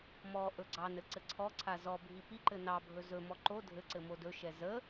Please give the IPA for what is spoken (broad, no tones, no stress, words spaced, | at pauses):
mɔ ʔɵɡ͡ǀɑnɘ ǀɘǀʰɔǀʰa zɔbʱi piǃɘ nɑbʱɵ zɵmɔ ǃo dʱɘǀɘ modɵʃɛ zə